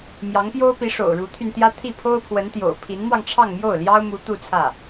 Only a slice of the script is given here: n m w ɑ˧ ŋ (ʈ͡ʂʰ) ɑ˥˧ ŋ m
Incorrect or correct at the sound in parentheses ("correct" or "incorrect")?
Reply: correct